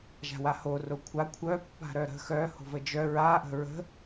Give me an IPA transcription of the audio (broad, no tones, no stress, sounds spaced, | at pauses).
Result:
ʒ a̤ w a h o r o kʷʰ a kʷʰ œ pː a̤ ɾ œ ɾ ə̤ x œ h o̤ v ə d͡ʒ œ ɹ a ʔ ə̤ ɹ ə̤